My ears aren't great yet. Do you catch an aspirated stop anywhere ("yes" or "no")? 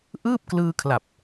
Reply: yes